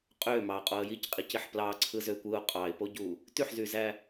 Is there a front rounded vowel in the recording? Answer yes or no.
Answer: yes